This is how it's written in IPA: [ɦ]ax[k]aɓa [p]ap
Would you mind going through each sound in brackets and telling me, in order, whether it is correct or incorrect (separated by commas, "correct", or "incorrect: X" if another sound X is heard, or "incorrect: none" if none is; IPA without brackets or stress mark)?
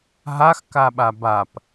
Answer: correct, correct, incorrect: b